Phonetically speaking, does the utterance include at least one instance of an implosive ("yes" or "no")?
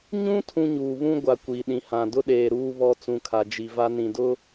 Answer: yes